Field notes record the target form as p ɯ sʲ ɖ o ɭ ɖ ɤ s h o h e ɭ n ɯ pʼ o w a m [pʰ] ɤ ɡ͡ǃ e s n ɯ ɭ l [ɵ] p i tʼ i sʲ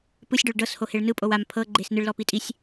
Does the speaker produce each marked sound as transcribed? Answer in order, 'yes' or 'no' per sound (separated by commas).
yes, no